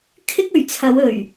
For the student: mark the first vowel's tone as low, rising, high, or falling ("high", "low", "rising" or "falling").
high